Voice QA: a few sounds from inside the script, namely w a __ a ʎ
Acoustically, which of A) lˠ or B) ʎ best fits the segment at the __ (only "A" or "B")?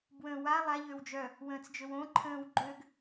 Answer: A